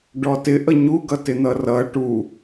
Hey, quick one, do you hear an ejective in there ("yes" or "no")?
no